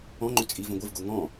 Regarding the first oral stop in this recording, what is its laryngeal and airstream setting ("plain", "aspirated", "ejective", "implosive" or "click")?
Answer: click